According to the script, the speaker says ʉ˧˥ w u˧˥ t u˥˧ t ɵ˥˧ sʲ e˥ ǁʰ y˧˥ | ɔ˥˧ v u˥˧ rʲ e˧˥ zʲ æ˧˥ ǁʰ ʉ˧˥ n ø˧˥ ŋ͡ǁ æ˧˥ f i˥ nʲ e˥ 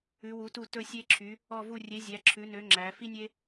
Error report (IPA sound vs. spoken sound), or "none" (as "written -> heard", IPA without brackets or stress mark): none